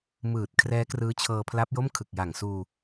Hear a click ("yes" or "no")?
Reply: no